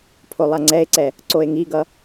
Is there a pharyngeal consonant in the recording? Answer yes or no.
no